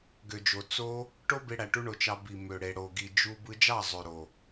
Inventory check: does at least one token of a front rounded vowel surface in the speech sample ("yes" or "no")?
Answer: yes